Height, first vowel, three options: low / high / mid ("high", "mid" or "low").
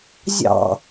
low